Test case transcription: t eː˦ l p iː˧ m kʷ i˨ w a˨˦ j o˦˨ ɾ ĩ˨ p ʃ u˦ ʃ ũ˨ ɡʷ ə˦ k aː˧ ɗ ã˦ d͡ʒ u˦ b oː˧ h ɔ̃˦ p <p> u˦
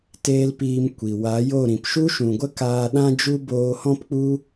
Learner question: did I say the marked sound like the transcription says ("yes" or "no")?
no